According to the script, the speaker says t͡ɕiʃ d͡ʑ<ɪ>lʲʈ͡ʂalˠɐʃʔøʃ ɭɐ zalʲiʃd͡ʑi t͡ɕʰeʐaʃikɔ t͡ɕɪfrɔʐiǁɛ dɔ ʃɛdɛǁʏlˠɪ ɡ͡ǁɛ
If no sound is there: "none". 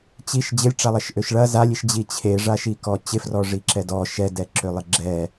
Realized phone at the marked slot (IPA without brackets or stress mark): ɪ